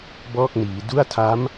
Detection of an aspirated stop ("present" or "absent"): present